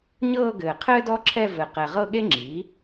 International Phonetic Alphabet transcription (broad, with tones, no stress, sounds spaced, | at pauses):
ɲ ɤː˥˧ ɡ ɘː˨˩ qʰ ɘː˥ d ɔ˥ ǁʰ ɛ˥˧ v ɘ˨˩ q ɛ˨˩ ʁ ɤ˥˧ ɠ e˥ ŋ͡ǁ iː˩˥